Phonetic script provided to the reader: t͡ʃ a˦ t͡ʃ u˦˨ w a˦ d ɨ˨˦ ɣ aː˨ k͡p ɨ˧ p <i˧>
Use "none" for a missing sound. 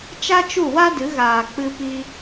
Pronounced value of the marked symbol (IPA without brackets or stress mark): i˧